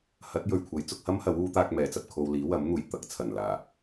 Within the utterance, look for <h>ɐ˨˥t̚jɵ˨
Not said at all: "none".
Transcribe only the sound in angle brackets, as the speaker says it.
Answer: h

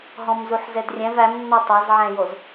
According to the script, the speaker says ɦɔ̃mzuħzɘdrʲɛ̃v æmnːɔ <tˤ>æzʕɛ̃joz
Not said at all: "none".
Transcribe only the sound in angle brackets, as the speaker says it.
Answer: tˤ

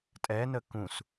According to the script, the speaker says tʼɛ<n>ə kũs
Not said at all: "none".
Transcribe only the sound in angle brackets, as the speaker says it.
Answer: n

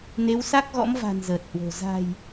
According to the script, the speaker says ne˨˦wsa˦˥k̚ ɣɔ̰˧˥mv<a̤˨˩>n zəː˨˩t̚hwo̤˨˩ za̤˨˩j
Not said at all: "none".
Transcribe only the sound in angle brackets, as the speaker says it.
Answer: a̤˨˩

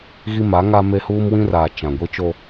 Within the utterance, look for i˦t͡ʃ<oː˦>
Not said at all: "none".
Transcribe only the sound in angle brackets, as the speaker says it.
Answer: o˦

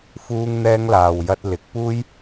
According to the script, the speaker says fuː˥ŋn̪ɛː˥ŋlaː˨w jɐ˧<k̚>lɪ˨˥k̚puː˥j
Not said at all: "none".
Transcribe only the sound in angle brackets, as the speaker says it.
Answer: t̚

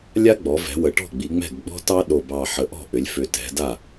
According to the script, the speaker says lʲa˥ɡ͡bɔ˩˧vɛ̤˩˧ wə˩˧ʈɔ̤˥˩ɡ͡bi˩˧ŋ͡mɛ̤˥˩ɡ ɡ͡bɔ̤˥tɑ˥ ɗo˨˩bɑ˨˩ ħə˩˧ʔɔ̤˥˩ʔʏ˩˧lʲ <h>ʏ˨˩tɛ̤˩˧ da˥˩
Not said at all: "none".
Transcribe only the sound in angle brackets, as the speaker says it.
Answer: f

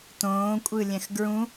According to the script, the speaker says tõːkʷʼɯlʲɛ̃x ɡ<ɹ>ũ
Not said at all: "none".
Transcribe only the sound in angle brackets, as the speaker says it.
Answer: ɹ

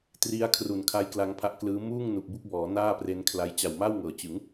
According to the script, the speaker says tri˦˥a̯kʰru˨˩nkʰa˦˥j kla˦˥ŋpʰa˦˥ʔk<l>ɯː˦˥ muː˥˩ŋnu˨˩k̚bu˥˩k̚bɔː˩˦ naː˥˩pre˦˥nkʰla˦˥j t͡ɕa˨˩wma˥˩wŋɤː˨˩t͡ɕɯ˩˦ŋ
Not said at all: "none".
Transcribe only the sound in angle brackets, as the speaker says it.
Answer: l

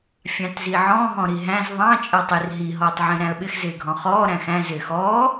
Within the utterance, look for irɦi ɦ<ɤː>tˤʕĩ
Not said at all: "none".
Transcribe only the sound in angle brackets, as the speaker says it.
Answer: ɔː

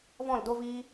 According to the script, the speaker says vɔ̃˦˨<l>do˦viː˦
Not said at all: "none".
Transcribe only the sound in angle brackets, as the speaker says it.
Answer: l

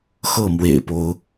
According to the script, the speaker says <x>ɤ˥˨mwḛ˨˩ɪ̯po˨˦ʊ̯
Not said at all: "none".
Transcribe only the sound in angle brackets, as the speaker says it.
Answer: x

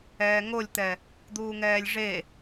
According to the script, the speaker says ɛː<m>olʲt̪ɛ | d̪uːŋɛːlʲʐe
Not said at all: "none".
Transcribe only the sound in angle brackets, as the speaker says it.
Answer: ŋ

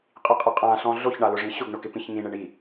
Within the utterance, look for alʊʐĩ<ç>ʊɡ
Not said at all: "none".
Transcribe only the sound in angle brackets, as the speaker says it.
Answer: ɕ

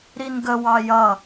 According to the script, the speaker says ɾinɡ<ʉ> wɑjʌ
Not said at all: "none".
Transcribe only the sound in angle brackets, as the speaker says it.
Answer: ə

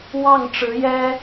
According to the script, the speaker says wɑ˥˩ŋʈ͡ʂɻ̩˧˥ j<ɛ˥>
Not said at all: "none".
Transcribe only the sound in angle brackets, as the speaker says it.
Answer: ɛ˥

